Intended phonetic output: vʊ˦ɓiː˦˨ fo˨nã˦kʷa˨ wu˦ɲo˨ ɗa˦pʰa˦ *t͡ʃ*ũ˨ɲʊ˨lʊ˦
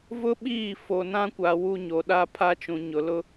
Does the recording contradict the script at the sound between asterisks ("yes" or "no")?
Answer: no